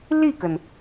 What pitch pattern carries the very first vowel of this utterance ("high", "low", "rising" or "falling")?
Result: falling